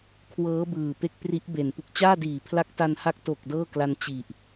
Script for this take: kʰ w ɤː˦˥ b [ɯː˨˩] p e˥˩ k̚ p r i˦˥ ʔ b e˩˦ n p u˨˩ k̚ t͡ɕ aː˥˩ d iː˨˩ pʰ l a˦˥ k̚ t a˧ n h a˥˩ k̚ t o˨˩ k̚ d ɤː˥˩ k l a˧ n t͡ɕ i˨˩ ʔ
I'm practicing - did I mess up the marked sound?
no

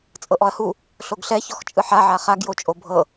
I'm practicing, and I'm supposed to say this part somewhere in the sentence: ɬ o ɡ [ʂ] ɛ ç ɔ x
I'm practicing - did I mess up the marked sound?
yes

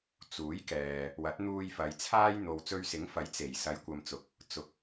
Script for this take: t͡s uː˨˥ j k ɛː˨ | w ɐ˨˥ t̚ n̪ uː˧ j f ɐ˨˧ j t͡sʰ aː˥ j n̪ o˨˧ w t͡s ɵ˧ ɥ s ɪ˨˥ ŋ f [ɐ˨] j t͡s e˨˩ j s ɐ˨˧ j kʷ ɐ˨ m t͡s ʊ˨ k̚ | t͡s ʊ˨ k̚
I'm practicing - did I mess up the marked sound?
yes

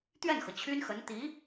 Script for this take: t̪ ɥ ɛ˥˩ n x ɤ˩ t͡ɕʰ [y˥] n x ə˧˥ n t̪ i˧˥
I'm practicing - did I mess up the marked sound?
no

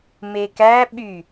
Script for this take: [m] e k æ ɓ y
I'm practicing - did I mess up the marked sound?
no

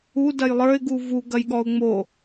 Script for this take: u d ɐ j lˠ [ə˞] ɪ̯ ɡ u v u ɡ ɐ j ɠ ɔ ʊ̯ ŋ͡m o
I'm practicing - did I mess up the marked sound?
no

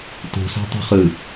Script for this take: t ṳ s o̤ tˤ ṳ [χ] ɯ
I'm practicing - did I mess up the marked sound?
no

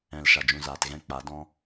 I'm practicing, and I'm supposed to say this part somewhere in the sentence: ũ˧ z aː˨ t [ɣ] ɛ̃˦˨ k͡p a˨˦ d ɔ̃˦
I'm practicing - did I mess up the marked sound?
no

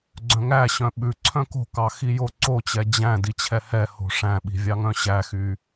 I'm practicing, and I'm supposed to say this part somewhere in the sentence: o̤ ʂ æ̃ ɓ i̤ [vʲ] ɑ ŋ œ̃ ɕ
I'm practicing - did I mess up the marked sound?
no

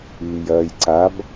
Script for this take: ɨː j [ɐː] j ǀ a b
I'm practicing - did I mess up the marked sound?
no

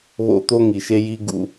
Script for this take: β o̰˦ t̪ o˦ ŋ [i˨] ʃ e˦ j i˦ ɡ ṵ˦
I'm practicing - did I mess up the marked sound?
no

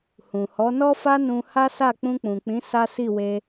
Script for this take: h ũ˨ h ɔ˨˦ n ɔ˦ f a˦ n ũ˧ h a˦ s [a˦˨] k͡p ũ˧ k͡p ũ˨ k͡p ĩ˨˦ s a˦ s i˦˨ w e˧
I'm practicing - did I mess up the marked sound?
no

